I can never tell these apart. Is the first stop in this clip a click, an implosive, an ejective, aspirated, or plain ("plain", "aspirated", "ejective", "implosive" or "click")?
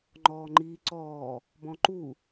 click